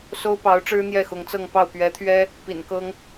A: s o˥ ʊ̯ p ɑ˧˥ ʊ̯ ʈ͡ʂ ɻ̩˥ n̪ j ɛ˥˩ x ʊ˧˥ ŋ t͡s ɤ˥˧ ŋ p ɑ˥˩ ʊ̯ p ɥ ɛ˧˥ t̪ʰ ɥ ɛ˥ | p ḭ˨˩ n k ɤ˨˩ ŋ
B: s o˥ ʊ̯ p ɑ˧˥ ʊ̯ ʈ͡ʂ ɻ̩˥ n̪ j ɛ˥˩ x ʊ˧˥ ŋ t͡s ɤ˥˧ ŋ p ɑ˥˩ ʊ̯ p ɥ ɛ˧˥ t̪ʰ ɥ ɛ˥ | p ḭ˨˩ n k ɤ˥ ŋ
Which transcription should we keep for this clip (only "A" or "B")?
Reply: B